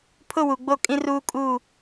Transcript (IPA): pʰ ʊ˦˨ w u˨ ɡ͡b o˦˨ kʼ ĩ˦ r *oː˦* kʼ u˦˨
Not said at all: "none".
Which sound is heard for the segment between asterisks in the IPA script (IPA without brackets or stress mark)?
uː˦